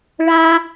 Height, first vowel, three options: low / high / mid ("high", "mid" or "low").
low